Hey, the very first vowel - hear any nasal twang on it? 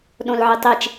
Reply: yes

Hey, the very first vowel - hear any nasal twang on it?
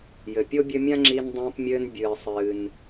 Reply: no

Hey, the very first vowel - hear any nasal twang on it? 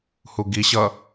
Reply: no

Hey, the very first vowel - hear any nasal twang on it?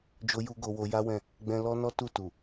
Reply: no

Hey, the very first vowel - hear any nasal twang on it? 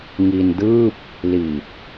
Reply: no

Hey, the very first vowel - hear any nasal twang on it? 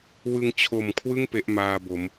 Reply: no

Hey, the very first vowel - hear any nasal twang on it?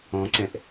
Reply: yes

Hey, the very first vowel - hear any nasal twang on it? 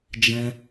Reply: yes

